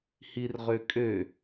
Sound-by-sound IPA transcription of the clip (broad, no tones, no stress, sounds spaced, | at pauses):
h i r ʁ ø kʼ ø